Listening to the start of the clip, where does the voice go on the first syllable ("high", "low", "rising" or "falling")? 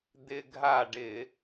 low